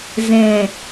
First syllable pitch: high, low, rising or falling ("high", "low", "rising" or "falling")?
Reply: low